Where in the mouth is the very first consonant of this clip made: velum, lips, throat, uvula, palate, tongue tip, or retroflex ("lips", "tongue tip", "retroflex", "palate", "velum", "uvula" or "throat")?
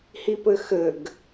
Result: throat